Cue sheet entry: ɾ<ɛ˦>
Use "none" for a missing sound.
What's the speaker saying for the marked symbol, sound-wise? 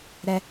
ɛ˦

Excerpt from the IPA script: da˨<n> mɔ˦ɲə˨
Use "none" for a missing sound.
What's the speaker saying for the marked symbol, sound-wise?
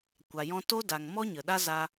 ŋ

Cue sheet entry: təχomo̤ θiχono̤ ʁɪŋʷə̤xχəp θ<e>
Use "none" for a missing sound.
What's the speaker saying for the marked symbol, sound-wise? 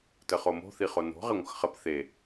e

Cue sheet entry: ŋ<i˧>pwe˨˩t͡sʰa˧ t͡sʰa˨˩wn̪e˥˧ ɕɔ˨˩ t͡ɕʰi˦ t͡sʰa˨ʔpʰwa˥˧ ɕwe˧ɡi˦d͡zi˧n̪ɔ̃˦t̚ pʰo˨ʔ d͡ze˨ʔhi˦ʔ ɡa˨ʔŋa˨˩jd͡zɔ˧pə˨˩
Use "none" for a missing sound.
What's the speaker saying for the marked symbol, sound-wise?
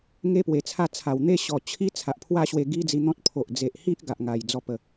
e˧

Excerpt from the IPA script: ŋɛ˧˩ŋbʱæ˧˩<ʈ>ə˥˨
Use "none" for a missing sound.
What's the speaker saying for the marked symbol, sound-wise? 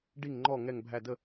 d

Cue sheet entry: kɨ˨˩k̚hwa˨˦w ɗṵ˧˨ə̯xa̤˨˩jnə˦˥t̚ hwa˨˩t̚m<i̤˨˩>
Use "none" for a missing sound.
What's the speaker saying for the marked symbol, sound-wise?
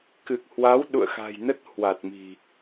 i̤˨˩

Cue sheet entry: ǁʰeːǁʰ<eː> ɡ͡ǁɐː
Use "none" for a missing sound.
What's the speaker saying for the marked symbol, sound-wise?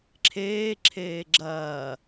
eː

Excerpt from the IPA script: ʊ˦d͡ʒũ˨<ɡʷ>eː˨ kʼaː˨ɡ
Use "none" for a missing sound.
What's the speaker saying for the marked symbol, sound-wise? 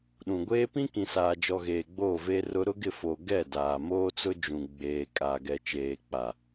ɡ͡b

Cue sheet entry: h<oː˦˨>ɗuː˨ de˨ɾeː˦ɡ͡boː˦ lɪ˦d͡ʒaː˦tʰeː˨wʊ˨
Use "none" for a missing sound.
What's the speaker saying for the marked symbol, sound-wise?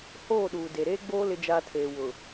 oː˦˨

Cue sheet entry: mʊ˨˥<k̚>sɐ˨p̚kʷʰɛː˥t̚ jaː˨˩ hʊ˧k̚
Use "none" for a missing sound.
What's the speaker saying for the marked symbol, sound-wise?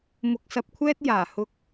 k̚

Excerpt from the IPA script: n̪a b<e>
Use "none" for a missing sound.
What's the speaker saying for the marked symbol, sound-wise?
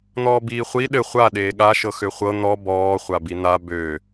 ø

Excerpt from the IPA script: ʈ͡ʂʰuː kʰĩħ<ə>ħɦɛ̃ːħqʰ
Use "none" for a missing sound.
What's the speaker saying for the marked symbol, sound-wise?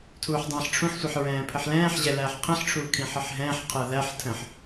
ə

